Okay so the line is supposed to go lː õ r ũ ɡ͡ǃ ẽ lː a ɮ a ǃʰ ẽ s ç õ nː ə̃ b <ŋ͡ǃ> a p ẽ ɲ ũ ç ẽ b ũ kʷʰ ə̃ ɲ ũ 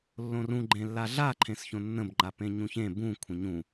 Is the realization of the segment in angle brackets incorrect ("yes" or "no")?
no